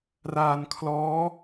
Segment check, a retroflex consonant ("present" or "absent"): absent